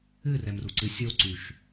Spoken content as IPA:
ɨrɛmruǀɨ sʲoǀyʃ

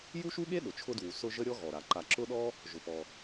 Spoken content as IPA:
ju˥ʃu˥ɠe˥ ɗʊ˩t͡ʃʰʊ˦dwu˩ sʊ˦ ʒə˥ɾʲɔ˥ɣɔ˩ɾa˩ ǃa˨ǁʊ˥ɗɔ˥ | ʒʊ˩pɔ˩

